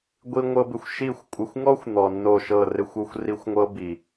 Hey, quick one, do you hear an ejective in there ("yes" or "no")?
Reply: yes